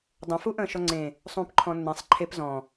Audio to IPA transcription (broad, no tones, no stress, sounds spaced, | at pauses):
dˤ ə̃ f u ʔ ə̃ː ʃ ɔ ŋ͡ǀ ẽ | sˤ ũː p ǃʰ ɔ̃ nː ẽ sˤ ǃʰ e p z ɔ̃